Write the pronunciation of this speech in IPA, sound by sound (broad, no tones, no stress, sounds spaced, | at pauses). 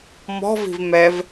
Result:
m ɔ̤ v i̤ v m ɛ v